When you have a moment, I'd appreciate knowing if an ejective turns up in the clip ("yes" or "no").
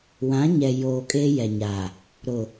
yes